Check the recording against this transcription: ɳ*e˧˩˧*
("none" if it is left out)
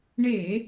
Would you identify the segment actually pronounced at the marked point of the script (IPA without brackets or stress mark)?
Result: e˧˩˧